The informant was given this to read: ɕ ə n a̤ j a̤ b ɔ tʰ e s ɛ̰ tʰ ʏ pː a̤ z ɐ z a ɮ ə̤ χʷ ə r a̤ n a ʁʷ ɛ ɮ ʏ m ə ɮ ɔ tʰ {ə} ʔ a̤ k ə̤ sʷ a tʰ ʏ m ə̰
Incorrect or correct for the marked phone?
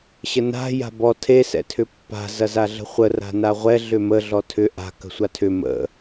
incorrect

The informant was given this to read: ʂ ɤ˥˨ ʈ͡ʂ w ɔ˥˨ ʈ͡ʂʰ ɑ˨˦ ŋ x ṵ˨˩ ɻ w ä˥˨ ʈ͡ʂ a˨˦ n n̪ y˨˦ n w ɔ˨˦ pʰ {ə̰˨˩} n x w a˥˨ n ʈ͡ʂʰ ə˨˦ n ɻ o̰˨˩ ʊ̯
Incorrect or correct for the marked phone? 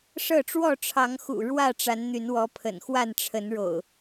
correct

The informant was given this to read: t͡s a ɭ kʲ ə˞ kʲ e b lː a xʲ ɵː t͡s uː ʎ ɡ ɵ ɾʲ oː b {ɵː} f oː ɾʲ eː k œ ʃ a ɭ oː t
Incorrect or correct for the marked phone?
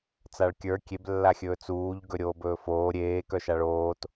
correct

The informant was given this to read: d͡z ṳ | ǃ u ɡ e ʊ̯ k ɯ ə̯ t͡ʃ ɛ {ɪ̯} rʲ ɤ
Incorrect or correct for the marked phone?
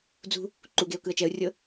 incorrect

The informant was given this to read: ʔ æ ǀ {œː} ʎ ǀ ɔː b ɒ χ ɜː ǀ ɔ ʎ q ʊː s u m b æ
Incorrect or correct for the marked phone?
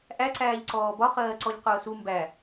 incorrect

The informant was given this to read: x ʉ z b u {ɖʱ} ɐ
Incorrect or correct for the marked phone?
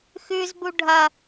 correct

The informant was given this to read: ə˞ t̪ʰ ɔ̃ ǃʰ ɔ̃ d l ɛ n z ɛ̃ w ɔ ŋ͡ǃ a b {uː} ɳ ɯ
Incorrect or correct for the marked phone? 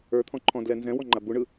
incorrect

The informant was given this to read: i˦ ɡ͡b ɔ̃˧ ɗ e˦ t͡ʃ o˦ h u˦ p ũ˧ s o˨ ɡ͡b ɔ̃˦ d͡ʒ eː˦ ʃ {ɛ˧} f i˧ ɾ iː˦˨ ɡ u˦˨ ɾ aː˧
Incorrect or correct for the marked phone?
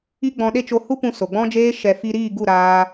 correct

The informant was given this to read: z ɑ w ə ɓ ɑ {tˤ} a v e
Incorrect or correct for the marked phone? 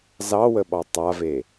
correct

